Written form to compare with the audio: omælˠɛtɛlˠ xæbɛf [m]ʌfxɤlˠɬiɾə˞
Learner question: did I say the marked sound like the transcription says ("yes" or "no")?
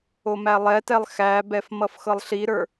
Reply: yes